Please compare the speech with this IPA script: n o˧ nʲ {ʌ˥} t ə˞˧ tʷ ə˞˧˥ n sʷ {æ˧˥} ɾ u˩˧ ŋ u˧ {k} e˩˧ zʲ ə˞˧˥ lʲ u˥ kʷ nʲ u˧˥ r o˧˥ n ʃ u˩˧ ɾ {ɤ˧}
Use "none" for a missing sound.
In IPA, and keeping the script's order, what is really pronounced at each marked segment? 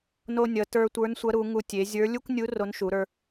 ʌ˩˧, ɐ˧˥, tʲ, ə˞˧

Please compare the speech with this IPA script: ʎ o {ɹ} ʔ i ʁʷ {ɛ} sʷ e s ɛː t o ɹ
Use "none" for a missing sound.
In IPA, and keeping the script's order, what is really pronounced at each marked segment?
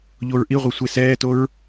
ɹ, ɛ

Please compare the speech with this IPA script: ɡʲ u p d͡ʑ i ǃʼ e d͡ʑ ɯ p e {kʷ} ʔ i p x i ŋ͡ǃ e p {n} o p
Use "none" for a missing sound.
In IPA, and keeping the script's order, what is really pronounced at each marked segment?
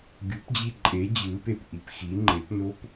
p, n

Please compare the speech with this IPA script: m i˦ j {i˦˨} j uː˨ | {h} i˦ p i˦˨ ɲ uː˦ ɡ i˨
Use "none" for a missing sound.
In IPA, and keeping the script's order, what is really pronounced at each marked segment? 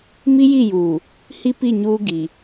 i˦˨, h

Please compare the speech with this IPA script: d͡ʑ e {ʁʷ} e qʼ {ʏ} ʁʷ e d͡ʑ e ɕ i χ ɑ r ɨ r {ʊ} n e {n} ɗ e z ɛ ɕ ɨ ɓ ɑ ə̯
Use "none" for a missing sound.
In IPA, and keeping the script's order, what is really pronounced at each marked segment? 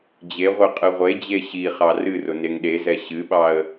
ʁʷ, ɨ, ʊ, ŋ

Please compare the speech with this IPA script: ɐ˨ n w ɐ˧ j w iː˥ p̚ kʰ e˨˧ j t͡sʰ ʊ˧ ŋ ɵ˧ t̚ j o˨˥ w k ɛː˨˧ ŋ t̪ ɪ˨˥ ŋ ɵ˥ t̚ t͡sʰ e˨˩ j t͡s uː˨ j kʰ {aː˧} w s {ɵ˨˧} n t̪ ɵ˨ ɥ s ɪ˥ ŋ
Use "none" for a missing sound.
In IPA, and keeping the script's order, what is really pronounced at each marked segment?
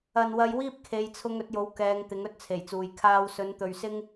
aː˧, ɵ˨˧

